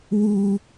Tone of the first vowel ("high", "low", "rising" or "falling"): high